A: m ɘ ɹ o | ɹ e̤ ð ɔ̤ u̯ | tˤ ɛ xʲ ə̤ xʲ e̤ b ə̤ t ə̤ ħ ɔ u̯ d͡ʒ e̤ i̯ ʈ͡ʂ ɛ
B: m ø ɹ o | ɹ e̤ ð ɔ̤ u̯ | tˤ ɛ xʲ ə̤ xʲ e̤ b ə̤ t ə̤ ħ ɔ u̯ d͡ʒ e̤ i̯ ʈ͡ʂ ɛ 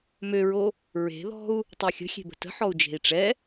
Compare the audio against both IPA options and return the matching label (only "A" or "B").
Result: B